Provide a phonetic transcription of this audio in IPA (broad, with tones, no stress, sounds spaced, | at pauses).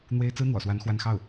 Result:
n̪ w e˥ ɪ̯ t͡s ɹ̩˥ n̪ w ɔ̰˨˩ s w a˧˥ n x w a˥˧ n x ɑ˥˩ ʊ̯